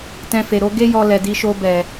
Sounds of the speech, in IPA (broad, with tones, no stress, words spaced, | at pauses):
tɛ̃˧fe˨ɾo˨˦ ɡe˦ jɔ˧lɛ˨ di˧ʃo˧bɛ˨